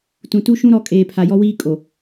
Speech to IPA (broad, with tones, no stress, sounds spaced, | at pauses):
t ũ˨ t u˦ ʃ ũ˦ ɾ ɔ˨˦ kʼ eː˨ pʰ a˨ j ɔ˦ w iː˦ kʼ o˨